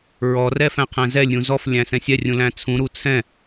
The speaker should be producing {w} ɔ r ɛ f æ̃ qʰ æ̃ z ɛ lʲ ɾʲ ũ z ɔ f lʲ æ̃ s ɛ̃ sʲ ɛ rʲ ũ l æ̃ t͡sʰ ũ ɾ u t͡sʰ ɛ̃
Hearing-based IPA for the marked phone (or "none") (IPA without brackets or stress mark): ɹ